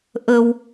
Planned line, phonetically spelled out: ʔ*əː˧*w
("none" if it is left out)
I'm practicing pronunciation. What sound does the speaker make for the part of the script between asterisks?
ə˧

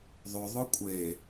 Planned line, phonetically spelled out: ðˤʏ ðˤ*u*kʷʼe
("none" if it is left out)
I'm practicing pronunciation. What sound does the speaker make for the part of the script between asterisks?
ʊ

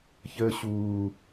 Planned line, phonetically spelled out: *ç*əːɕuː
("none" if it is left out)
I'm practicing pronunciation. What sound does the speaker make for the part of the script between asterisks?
ç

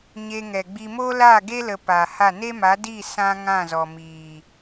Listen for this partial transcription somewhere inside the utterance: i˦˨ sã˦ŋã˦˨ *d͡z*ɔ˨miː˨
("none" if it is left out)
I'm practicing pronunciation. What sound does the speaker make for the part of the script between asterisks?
z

